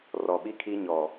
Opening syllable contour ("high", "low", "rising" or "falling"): low